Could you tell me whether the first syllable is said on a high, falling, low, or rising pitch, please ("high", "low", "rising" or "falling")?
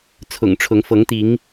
low